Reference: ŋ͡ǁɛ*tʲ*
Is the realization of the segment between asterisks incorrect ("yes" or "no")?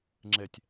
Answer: no